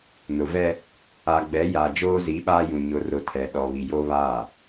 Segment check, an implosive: present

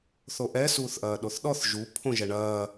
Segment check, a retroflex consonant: present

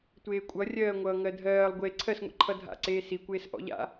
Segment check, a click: present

